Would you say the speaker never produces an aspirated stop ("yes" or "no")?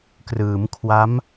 no